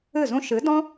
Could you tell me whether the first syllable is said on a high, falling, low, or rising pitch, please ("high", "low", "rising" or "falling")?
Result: falling